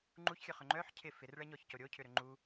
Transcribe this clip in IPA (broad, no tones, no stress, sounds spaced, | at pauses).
ŋ͡ǃ u ç xʲ œ χ ʏ ŋ͡ǃ œ ħ cʰ ɪ f ɪ r ɭ ɛ ɲ ɔ ç c o ɾʲ o cʰ ʏ ɾ ʏ ŋ͡ǃ u